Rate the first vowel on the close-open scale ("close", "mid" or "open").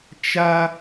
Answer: open